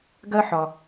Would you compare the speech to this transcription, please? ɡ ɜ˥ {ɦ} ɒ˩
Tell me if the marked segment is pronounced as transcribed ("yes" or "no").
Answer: no